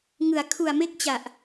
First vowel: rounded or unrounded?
unrounded